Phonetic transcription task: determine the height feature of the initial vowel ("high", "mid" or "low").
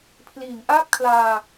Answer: high